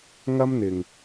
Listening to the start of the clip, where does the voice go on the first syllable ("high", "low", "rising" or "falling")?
high